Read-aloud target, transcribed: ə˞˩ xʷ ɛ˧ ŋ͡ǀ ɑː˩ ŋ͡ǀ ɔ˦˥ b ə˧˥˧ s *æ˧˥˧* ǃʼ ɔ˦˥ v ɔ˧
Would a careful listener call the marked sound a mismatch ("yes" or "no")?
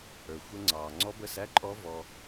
no